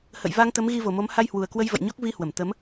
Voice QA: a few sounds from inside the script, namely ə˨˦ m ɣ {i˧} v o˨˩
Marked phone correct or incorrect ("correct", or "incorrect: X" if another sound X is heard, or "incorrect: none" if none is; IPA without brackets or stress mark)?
correct